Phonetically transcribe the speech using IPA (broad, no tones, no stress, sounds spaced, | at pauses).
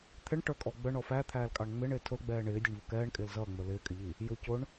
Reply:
t̪ʰ ɪ ɳ ʈ ə˞ kʼ ɔ ɡ͡b ə ɳ ɔ f æ t̪ʰ æː l kʼ ɑ ɳ ŋ͡m ɪ ɳ ɪː tʰ ʊ l ɡ͡b ɛː ɳ ɪː dʲ ə ɳ v ʊ k ɛː ɳ kʼ ɪː l z ʌː ŋ͡m ə˞ l ɪː kʼ ɪ ʎ i | j ʊ c ʊ ɳ